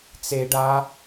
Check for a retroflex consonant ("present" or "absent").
present